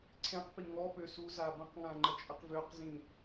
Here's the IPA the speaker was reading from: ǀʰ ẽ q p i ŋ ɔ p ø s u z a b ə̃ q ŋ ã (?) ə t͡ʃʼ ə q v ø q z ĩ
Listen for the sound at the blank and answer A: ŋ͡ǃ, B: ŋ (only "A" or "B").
A